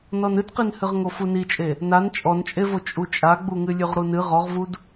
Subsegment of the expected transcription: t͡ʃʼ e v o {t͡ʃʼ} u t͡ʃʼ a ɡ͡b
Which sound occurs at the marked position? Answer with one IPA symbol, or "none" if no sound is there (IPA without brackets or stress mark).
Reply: t͡ʃʼ